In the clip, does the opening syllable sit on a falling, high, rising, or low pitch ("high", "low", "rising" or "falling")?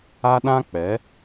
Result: high